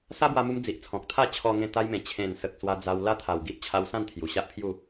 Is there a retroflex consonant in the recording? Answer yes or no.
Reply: no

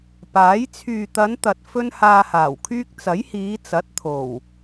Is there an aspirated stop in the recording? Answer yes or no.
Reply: yes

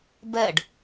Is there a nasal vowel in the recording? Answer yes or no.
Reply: no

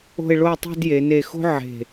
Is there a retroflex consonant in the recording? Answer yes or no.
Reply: yes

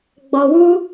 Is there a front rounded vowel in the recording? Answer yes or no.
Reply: no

